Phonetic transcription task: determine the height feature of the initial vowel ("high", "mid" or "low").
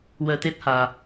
mid